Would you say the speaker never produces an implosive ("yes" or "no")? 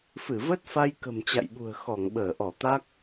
no